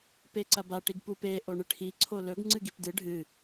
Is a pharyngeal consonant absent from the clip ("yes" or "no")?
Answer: yes